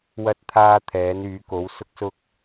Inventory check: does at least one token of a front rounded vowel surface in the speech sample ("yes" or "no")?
yes